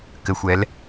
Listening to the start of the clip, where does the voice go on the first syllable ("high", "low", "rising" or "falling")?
low